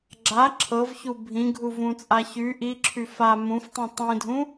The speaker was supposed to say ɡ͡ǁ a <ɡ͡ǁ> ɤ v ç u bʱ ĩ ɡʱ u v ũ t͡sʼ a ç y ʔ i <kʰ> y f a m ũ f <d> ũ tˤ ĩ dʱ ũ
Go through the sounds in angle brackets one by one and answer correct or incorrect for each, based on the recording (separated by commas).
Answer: incorrect, incorrect, incorrect